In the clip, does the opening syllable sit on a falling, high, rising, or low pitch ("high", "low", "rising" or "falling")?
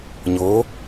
rising